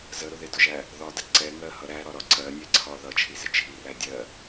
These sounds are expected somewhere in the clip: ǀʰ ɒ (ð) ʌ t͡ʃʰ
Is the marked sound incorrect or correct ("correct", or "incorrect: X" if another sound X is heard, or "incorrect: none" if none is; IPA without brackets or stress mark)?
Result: correct